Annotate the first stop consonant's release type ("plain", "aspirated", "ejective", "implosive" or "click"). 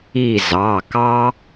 plain